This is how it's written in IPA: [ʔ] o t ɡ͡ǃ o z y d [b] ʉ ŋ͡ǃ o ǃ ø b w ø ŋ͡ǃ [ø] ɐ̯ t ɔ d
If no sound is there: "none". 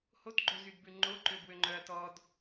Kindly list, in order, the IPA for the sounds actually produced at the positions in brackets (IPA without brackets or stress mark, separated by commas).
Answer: h, b, œ